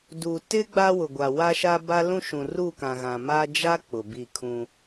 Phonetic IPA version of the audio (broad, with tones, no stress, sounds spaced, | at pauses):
d u˨ t ɪ˦ ɡ͡b a˦ w ʊ˨ ɡʷ a˨ w a˦ ʃ a˦ b a˦ l ũ˦ ʃ ũ˨ r u˦˨ k ã˨ ɣ ã˨ m a˦ d͡ʒ a˦ k͡p ʊ˨ b i˦˨ kʰ ũ˦